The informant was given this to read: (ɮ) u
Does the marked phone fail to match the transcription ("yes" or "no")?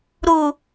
yes